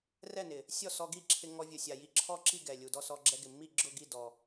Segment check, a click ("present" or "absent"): present